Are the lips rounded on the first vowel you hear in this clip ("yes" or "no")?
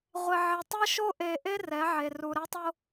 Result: no